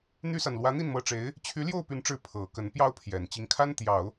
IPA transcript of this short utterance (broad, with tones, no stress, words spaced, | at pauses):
n̪y˥sa˨n lwä˧˥n̪i˥˩nmɤ˧˥ʈ͡ʂe˧˥ɪ̯ | t͡ɕʰy˧˥ljo˥˩ʊ̯py˧˥nʈ͡ʂɻ̩˧˥ pʰɤ˨˩kə˧˥n pjɑ˥ʊ̯pʰjɛ˨˩n t͡ɕi˧˥ŋkʰa˥nt̪jɑ˨˩˦ʊ̯